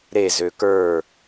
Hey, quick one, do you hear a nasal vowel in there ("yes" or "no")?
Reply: no